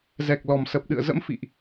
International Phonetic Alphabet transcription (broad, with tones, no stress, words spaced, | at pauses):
zɛ˨˩k̚lɔ˨˩m sə˨˩p̚ ɗɨ̰˧˨ə̯zə̰˧˥mfḭ˧˨ʔ